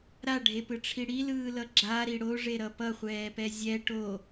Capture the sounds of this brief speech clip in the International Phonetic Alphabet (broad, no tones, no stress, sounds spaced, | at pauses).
ɾ a ɖʱ e p ɯ ʈ͡ʂʰ i ɽ i l ɯː l ʌ ɡ͡ǁ a ɾ i ɽ o ʐ e ɾ ʌ p ʌ χʷ ɛː p ɛ zʲ ɛ ʈ o